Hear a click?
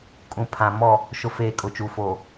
no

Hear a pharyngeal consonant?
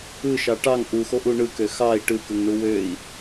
no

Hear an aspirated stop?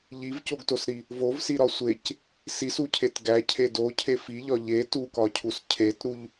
yes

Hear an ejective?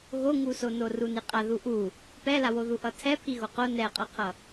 yes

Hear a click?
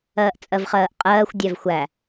no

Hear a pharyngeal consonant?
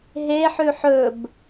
yes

